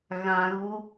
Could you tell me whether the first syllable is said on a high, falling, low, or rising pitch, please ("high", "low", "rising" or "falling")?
low